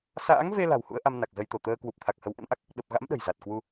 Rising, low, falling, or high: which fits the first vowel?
rising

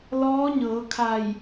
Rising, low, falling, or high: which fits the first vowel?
rising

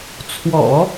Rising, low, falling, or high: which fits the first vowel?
low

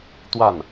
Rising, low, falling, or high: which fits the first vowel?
falling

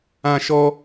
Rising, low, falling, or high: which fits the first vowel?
high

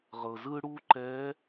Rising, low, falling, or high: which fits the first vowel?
low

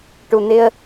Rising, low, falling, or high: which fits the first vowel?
low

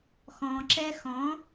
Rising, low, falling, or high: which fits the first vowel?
low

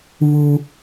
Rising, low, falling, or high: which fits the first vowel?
high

